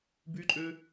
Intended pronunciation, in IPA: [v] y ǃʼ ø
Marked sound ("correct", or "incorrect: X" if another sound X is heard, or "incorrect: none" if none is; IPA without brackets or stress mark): incorrect: b